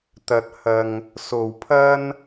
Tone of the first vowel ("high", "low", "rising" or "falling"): low